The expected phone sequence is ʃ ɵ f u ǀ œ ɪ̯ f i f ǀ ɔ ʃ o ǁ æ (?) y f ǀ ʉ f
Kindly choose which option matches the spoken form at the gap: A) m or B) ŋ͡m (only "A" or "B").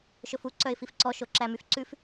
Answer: A